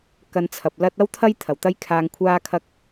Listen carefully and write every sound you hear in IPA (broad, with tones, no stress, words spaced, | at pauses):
kɐ˧nt͡sʰɐ˨p̚lɐ˥t̚ ɐ˥wt̪ʰɐ˥j t̪ʰɐ˨˩wt̪ɐ˥jkʰaː˧ŋ kʷʰaː˥kʰɐ˥k̚